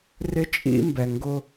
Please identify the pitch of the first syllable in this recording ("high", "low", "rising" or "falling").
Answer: high